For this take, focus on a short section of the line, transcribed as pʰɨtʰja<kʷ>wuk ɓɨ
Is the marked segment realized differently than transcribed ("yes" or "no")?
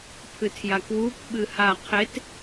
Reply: yes